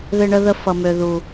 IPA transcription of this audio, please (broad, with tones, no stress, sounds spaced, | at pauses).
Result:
ð ɪ˧ ɳ ə˧ ð ə˧ f ʌ˨ m ø˨ ð u˨